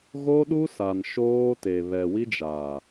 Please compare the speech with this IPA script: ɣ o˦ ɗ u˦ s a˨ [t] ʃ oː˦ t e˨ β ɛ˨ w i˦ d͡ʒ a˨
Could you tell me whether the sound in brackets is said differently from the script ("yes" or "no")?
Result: yes